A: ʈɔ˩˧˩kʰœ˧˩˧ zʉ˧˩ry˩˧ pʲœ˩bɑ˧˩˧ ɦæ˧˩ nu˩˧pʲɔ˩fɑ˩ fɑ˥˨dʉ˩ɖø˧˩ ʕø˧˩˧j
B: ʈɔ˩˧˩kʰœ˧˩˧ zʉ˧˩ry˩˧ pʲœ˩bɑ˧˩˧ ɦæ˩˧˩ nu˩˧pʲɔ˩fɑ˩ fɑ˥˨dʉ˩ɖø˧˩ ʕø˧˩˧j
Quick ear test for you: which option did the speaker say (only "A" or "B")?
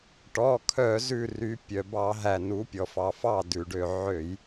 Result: A